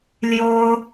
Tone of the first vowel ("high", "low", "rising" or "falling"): high